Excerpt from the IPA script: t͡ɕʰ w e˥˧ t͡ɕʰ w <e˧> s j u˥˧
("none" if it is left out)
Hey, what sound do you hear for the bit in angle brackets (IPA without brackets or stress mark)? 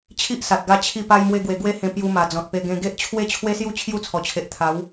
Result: e˦